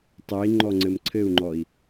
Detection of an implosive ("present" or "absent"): absent